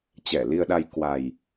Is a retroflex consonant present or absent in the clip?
absent